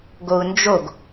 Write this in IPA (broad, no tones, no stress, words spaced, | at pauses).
ɡou̯nd͡ʒoɡ